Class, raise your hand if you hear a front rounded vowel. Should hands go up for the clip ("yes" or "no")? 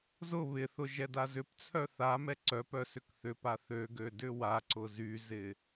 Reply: yes